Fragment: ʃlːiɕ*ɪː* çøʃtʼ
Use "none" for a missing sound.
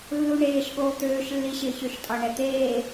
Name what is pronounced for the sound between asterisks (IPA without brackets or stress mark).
ɪː